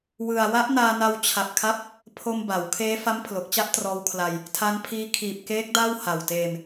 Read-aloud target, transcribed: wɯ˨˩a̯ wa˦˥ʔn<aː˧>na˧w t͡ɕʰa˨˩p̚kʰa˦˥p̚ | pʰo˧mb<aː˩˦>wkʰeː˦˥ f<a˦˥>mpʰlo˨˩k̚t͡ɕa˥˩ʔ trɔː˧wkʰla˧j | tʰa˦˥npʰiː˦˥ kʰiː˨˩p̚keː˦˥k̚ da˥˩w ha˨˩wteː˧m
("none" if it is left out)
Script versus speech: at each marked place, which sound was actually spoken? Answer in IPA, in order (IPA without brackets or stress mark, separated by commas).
aː˧, a˩˦, a˦˥